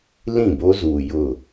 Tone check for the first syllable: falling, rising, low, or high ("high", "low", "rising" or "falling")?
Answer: falling